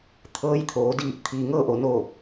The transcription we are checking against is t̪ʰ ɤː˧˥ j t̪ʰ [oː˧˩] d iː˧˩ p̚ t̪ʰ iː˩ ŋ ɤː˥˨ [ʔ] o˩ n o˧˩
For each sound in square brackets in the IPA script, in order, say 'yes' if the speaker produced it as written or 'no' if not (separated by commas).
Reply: no, yes